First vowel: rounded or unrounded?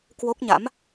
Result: rounded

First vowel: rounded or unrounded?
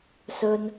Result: rounded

